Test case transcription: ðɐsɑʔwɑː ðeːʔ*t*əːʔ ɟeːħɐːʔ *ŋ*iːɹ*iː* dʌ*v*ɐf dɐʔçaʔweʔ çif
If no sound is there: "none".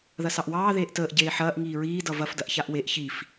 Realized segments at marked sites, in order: t, ŋ, iː, v

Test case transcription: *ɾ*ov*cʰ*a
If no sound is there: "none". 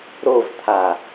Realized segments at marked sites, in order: ɾ, t̪ʰ

